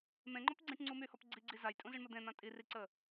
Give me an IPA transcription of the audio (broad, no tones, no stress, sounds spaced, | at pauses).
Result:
m ẽ ŋ͡ǃ ɔ p ɡ͡ǀ ĩ ʈ ŋ͡ǀ u m y h ɔ p ɡ͡ǀ i ɡ͡ǀ i z a j tʼ ũ z i ɳ m ə d̪ ẽ n̪ ã tʼ i r i ǀ ə